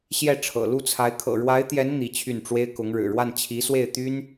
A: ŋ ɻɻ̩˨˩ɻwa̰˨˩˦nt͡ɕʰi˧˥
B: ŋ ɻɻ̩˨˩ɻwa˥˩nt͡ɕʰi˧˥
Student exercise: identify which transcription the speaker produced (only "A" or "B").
B